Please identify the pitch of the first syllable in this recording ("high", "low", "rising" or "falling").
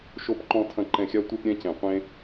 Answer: falling